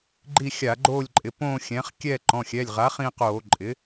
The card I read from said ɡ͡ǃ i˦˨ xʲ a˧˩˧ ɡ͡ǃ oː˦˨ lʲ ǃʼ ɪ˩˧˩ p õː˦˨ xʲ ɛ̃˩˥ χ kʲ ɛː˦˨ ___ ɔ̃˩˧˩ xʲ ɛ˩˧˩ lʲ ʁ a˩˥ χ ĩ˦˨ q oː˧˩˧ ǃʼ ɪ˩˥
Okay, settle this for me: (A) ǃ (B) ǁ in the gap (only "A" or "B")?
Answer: A